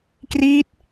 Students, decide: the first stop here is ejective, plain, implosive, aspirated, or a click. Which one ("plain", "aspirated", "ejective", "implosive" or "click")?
plain